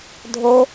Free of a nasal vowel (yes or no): yes